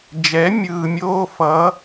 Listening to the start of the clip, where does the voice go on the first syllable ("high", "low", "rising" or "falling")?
rising